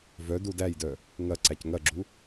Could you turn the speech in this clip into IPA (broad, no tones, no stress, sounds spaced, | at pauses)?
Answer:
v œ d u d æ j d œ | ŋ ɐ ǀ æ c ŋ ɐ ɡ͡ǁ u